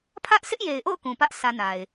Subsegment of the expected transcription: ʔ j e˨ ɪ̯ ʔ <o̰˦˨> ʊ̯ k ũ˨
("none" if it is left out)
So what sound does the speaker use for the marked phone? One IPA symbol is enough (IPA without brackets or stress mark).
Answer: o̰˦˨